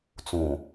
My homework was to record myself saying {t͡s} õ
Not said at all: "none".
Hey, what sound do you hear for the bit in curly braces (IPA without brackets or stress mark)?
t͡s